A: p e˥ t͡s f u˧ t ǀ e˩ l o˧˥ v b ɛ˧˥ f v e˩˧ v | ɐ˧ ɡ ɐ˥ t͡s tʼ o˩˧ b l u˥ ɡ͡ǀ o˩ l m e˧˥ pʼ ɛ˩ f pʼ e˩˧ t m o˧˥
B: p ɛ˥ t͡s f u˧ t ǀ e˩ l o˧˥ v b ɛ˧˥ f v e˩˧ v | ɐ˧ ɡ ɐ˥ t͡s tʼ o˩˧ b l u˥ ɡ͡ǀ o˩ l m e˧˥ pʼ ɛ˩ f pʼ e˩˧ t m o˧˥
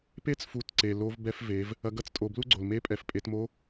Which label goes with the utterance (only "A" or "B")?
A